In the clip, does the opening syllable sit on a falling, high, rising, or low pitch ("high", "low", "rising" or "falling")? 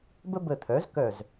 high